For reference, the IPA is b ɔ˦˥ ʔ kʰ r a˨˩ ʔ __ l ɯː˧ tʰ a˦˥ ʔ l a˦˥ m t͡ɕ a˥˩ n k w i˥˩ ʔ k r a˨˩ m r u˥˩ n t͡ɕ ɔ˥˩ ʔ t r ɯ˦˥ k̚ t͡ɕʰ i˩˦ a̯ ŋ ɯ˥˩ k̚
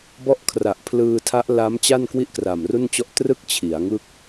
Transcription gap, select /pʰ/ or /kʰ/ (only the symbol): pʰ